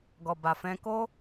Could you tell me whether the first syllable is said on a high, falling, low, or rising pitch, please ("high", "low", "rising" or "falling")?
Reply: low